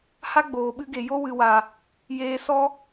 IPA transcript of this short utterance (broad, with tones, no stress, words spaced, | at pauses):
ha˦ɡ͡boː˨ɓɨ˧ɡe˨ jo˧ wɨ˨wa˨ | jeː˧sɔ˦